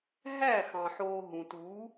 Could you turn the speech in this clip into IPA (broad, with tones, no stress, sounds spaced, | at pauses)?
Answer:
ɦ æ˦˨ x ɑ̃˨ ħ oː˧ ɦ ũ˨ t u˨˦